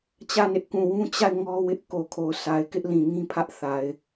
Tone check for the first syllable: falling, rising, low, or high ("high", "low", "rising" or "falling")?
falling